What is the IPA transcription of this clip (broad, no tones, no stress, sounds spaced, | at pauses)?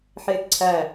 ħ eː k ǀʰ æ